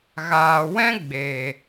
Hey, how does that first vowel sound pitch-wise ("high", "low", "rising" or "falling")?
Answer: low